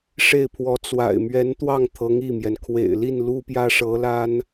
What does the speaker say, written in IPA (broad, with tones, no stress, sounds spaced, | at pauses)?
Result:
ʂ e˥˩ ɪ̯ pʰ w ɔ˧˥ t͡s w a̰˨˩ ɪ̯ m ɥ ɛ˧˥ n t̪ w ɑ˥˩ ŋ t̪ʰ ɤ˧˥ ŋ i˥˩ m j ɛ˩ n kʰ w ḛ˨˩ ɪ̯ l i˥˩ n l u˥ p j ä˥ ʂ ɤ˧˥ l a˥ n